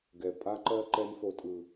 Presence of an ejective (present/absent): present